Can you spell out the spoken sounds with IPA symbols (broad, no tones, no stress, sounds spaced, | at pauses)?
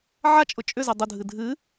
ʕ a t͡ʃʼ ʊ t͡ʃʼ ʏ z ɛ dˤ ʊ dʱ ɨ dʱ ɨ